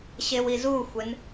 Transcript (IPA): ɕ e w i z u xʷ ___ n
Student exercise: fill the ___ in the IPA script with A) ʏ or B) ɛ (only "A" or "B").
B